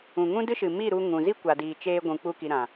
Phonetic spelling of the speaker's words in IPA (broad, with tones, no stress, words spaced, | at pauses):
ũ˨ŋũ˦dɨ˦ʃɨ˨ mi˦˨ɾu˧ ŋũ˨ zi˦kʷa˨diː˨ t͡ʃeː˧ ɡʷũ˨ k͡pu˧ki˨ ɾã˨